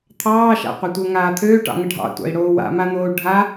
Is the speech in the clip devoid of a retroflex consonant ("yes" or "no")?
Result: no